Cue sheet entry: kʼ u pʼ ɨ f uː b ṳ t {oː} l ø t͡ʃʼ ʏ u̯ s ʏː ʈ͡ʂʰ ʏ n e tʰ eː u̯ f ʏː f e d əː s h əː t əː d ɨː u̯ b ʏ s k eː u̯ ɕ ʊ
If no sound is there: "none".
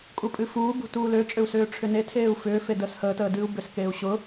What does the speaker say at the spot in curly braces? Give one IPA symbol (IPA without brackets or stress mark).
uː